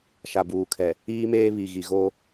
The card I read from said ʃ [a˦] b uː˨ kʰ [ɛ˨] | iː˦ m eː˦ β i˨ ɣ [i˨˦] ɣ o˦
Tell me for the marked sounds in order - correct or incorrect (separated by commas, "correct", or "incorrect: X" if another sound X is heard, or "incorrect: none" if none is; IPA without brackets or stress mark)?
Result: incorrect: a˨, correct, incorrect: i˨